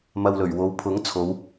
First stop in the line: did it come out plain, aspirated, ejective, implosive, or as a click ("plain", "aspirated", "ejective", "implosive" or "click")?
aspirated